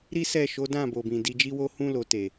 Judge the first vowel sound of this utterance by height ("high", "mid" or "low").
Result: high